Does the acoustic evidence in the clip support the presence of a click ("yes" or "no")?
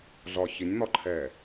yes